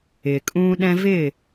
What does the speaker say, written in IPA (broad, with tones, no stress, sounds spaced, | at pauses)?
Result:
ɪː˨ kʼ ũː˦ ɗ ɛ̃˦ v ɪː˦˨